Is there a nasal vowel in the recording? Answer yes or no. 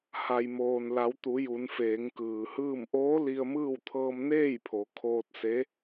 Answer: no